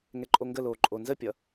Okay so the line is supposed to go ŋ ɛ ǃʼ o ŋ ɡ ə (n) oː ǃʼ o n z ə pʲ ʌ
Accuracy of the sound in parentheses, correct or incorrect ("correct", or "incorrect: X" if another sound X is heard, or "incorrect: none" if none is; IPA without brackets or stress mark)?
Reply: incorrect: l